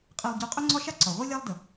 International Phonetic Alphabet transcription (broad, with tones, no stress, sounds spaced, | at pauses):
qʼ e˧ lˠ ɟ o˧ qʼ ɵ˥ ŋ͡ǀ ɒ˥ ʃ a˥ ǀ ɒ˩ ʁʷ i˥ lʲ a˥ lˠ d ə˩